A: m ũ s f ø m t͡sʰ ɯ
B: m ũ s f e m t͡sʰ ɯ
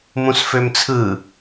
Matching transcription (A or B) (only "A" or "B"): A